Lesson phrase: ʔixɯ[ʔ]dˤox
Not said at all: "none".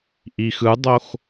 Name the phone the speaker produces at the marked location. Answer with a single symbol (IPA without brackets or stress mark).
none